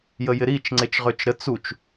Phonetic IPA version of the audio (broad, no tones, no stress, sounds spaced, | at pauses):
j ə j ɪ ɾ i t͡ʃ ŋ͡ǀ e t͡ʃ ʁ ø t͡ʃ ɾ ə t͡s u t͡ʃ